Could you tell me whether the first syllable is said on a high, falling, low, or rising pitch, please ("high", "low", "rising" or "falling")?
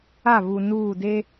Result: falling